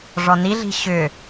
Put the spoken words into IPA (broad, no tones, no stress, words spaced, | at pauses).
ʐɔniɮi̤ ɕʏ